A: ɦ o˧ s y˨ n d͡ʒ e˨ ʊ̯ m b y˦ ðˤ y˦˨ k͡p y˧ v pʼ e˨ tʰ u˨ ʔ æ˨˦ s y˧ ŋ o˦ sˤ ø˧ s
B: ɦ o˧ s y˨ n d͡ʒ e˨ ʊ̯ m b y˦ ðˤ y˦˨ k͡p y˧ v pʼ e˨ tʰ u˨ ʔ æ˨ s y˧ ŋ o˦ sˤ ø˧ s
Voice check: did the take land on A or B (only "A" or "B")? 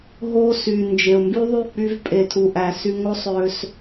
B